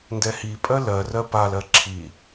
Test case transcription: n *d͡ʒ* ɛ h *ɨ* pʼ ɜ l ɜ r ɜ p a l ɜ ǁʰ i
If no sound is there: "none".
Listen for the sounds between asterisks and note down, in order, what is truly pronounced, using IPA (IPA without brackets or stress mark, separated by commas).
d, i